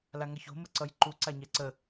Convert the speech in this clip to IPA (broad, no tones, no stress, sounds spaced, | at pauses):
l a ŋ ʌ ç o̤ m ə ǀ ʌ j ǃ u ǀ a ɲ ɛ ǀ ə